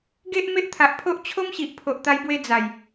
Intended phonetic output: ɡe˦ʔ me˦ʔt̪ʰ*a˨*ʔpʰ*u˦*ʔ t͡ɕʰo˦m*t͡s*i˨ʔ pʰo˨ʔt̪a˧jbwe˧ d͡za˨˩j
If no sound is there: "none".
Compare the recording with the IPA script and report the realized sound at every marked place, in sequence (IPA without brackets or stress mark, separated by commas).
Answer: a˨, o˦, ɕ